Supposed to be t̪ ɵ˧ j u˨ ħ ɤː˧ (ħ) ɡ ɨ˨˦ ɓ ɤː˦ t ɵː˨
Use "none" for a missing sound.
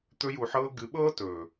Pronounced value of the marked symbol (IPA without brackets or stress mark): none